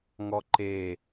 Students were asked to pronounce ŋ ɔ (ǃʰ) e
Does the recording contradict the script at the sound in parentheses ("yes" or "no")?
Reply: yes